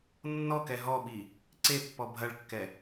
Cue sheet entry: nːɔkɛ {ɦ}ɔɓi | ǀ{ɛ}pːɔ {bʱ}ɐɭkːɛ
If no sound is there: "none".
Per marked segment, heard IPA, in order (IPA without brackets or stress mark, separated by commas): ɦ, e, bʱ